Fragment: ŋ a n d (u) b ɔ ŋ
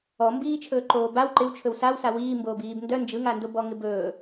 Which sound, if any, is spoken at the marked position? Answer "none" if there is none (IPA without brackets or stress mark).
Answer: o